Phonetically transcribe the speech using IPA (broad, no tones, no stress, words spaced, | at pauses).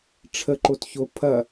ʈ͡ʂʰə ǃotço pʰɐ